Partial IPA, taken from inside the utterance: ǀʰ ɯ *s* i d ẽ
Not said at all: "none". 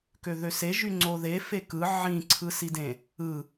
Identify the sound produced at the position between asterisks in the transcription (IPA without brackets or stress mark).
s